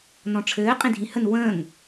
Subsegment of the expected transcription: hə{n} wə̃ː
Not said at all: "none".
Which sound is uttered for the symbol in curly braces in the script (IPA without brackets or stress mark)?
n